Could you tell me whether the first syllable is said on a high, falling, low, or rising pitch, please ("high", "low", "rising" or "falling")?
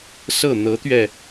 falling